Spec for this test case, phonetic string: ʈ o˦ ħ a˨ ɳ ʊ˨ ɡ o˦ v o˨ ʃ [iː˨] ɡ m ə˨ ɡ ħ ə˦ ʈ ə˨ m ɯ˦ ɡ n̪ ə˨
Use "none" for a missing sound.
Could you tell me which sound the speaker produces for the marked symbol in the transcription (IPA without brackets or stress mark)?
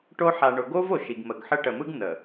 i˨